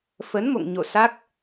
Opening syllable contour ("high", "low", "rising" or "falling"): rising